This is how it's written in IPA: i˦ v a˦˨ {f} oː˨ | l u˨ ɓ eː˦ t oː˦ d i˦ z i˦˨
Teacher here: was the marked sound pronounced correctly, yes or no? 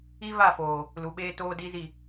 yes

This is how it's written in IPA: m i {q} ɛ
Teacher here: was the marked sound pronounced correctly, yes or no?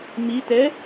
no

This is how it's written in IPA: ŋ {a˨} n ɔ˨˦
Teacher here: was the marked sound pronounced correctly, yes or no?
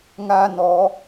no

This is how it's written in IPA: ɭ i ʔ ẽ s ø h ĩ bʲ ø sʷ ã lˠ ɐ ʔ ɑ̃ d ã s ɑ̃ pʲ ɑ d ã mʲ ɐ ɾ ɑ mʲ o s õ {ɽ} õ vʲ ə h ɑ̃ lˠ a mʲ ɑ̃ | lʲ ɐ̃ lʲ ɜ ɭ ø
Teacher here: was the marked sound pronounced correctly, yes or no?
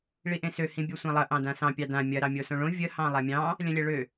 no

